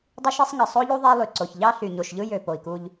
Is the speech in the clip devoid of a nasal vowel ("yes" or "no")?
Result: yes